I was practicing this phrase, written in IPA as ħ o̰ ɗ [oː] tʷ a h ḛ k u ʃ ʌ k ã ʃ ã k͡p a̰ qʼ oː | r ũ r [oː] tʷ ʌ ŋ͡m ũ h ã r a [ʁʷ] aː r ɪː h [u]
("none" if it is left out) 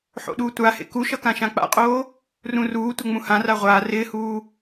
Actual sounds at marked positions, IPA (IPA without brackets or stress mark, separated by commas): uː, uː, ʁʷ, uː